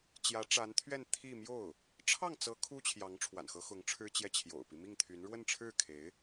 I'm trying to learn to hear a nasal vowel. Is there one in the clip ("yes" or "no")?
no